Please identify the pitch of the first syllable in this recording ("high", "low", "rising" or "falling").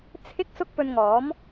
high